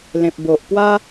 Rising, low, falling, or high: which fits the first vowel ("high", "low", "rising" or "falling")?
low